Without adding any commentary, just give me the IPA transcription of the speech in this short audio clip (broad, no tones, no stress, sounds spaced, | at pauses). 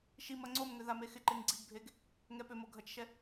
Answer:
ʃ i m ɐ ŋ͡ǀ o m ŋ ʏ ð a m e x ɪ ǃ e ŋ ɡ͡ǀ i ɡ bʱ e ɡ | ŋ ɛ p ʏ m o ɡʱ ɐ t͡ʃ ʃ ɛ